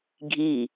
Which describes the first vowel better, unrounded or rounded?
unrounded